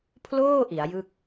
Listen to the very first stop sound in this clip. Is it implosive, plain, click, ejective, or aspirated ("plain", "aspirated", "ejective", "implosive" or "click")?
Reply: aspirated